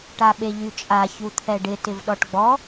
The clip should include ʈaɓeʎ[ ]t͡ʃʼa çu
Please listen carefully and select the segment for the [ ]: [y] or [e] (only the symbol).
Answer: y